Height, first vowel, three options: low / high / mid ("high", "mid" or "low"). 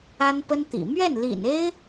low